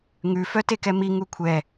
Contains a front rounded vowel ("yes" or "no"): yes